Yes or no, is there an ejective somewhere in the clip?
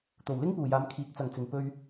no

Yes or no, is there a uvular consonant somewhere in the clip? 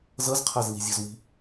yes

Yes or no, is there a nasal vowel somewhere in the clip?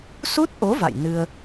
no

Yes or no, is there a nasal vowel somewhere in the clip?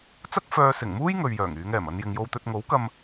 no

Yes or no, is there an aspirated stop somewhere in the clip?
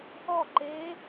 no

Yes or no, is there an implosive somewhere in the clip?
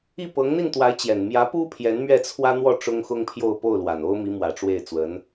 no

